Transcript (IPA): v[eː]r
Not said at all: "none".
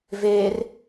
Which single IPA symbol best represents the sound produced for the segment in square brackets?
eː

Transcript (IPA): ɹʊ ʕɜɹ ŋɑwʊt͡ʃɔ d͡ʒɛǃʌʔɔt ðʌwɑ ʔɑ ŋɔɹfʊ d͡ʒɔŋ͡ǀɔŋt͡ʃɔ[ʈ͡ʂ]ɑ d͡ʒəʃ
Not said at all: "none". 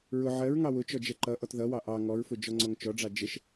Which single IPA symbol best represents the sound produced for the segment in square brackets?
ɖ͡ʐ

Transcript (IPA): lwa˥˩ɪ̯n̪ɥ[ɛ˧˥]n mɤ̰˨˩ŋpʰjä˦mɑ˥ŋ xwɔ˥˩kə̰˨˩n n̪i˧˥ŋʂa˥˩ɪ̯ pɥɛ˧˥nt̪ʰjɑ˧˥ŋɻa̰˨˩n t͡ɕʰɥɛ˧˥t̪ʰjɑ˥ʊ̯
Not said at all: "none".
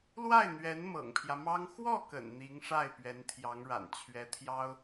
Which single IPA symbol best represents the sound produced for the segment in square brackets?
ɛ˧˥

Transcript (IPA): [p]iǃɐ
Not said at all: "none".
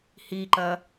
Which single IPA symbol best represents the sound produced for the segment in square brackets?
h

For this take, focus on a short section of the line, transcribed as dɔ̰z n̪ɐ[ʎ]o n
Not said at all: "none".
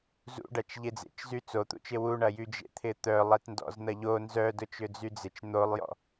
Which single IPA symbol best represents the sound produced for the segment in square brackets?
ʎ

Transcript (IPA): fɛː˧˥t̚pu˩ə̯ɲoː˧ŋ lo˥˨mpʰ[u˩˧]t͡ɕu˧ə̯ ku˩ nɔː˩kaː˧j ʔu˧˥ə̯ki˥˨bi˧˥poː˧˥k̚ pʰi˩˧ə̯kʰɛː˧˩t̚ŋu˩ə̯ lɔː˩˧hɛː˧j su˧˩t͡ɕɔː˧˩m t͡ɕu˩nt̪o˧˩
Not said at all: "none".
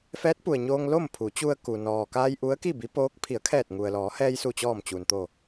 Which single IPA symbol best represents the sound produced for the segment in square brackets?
u˩˧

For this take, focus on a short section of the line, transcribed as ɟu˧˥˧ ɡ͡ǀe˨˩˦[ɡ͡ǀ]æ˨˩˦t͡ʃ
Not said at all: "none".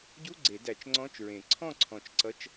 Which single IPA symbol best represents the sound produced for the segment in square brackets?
d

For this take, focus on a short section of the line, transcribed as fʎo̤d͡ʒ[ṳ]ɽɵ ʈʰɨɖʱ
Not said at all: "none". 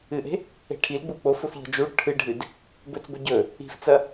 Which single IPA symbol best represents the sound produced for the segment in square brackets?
u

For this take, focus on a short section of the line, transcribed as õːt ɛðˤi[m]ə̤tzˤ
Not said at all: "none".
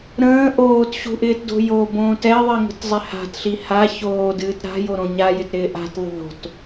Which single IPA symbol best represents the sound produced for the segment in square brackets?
ŋ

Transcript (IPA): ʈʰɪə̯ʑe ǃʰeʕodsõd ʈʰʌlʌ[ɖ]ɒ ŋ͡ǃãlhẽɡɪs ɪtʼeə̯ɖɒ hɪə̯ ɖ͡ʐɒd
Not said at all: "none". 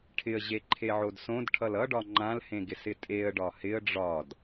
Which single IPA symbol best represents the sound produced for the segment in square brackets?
ɖ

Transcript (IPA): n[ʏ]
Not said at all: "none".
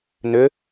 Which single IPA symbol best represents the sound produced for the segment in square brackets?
ʏ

